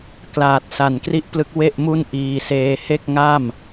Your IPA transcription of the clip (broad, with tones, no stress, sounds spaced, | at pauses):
k l aː˨˩ t̚ s a˨˩ n k r i˥˩ ʔ p l ɯ˦˥ k̚ w e˥˩ ʔ m u˥˩ n ʔ iː˧ s eː˦˥ h e˥˩ k̚ ŋ a˥˩ m